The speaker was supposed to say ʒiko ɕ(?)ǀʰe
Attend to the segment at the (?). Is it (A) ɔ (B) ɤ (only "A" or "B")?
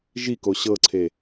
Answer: B